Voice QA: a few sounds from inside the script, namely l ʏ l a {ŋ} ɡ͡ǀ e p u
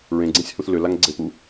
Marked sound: correct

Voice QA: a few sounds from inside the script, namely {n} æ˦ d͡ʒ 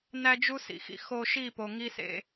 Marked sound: correct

